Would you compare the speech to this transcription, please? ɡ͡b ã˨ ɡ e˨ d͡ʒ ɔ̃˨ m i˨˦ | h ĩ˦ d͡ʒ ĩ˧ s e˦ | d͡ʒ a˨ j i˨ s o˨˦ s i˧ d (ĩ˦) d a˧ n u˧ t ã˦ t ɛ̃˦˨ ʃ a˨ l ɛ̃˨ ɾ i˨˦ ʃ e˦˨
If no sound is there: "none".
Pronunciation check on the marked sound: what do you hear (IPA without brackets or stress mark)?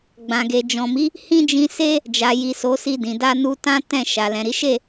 ĩ˨